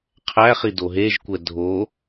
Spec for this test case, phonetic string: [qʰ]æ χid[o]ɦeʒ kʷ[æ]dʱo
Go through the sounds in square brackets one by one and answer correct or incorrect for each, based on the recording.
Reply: correct, correct, incorrect: ɛ

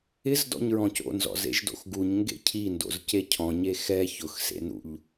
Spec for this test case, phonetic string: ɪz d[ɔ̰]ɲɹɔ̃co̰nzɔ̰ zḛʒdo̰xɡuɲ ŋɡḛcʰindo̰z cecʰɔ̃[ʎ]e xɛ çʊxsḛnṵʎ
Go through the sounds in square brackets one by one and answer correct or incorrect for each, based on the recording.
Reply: correct, incorrect: ɲ

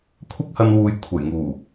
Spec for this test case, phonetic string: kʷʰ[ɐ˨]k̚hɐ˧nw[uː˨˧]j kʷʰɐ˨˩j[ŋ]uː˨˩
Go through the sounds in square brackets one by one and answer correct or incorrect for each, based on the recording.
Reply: incorrect: ɐ˥, incorrect: uː˨, correct

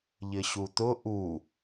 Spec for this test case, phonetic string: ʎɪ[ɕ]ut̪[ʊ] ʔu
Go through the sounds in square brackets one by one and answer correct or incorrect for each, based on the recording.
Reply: correct, correct

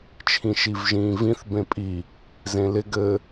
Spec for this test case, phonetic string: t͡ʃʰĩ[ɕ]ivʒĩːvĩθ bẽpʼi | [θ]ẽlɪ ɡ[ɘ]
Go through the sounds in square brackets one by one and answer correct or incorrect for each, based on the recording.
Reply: incorrect: ʃ, incorrect: z, correct

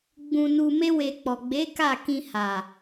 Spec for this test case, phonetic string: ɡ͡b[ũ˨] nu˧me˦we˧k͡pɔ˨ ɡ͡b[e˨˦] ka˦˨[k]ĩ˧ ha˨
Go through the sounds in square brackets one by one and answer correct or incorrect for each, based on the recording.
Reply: incorrect: ũ˧, correct, correct

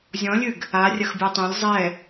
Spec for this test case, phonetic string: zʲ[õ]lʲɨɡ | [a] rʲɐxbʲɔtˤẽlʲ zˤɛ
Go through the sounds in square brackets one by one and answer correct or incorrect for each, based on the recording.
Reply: incorrect: ɔ̃, correct

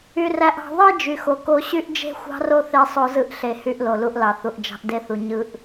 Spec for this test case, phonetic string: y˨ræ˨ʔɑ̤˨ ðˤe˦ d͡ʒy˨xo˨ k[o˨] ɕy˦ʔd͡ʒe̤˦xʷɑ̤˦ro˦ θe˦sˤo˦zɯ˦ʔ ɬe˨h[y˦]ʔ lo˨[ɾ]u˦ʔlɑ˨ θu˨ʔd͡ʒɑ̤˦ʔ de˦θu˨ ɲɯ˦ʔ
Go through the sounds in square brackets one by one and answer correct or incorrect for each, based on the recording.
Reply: incorrect: o˦, correct, incorrect: l

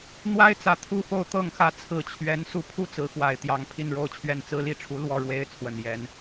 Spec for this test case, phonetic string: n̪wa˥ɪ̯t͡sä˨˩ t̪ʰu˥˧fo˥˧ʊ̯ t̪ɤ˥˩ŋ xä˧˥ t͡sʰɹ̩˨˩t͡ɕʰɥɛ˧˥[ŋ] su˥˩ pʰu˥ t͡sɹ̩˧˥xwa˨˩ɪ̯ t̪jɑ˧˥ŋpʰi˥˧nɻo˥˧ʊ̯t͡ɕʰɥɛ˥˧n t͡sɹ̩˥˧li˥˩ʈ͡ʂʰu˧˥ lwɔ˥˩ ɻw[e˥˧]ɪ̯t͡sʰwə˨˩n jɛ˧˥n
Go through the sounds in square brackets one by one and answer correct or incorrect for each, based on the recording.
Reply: incorrect: n, incorrect: e˥

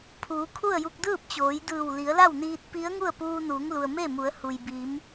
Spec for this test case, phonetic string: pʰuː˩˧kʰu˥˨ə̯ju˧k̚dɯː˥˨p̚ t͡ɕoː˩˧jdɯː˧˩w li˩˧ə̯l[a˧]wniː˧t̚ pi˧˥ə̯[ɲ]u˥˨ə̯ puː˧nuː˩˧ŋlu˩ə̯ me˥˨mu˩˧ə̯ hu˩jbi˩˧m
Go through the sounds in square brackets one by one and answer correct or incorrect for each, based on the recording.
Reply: incorrect: a˥˨, incorrect: ŋ

